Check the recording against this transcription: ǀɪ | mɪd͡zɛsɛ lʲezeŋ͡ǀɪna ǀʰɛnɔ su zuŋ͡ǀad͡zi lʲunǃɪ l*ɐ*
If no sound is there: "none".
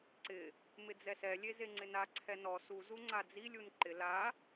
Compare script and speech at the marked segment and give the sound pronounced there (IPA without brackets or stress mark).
a